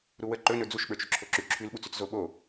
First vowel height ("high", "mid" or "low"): high